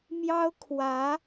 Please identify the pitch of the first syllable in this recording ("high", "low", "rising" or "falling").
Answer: high